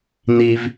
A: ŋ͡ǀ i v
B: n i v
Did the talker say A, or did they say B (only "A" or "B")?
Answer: B